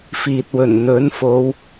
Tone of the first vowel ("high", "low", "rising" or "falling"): low